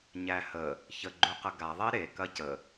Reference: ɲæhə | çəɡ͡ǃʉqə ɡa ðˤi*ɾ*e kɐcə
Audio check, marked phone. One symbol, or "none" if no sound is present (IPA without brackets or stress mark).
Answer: ɾ